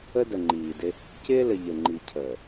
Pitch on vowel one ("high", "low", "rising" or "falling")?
high